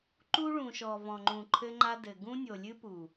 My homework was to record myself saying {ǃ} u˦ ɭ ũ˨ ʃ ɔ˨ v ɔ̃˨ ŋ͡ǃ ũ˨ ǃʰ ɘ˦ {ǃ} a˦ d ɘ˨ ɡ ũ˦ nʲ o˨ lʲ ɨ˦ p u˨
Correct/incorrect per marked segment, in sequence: correct, incorrect

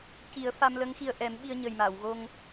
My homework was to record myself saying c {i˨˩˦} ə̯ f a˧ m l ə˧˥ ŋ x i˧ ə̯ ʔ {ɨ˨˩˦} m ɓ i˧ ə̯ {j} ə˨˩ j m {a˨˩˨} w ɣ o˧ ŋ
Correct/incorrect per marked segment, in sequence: correct, incorrect, incorrect, correct

